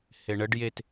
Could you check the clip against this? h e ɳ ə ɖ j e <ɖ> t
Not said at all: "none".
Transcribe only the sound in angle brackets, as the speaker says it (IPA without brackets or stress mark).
none